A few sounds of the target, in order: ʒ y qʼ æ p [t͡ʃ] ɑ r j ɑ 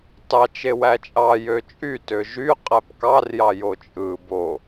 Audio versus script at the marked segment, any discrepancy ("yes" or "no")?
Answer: yes